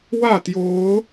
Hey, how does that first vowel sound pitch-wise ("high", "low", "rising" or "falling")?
falling